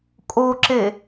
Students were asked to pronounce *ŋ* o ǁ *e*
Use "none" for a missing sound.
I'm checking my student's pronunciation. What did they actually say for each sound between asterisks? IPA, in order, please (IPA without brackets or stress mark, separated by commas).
kʼ, e